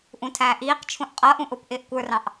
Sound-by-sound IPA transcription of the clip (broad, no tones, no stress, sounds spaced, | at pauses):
ʔ ũ tʰ æː ʔ iː q t͡ʃʰ ũ ʔ qʼ ʌ ʔ ũ ʔ ʊ p ʔ ɪː ʔ kʷ ə˞ r ɑ̃ ʔ